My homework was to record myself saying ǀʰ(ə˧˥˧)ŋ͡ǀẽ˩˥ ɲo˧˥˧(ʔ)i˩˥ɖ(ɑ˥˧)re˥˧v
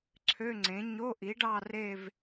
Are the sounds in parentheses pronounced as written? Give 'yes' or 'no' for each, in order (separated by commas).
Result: no, yes, yes